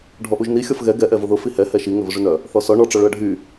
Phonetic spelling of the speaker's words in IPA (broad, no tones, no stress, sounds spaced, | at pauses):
ɖʱ ɔ ʔ u ʒ n i xʲ ɔ f ɣ ɛ ɡ ɛ ʔ ɛ v ʊ ð ʊ f i h ɛ h ɛ ʃ i ŋ ʏ v ʊ ʐ y n œ | θ ɔ s ɔ ɳ ɔ ʈ͡ʂ ɔ ɭ ʊ ɐ̯ ɖʱ y